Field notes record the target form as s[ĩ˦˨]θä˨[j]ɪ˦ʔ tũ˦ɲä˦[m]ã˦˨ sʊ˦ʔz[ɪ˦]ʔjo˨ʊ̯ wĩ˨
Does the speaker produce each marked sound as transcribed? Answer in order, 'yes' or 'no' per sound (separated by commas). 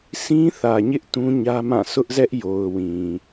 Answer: no, no, yes, no